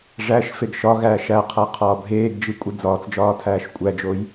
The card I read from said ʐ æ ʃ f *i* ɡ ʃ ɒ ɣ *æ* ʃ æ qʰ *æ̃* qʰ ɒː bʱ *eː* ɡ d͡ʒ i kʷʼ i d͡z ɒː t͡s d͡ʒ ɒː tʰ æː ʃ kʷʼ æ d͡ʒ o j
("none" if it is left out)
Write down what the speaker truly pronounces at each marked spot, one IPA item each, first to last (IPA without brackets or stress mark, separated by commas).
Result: e, æː, æ, eː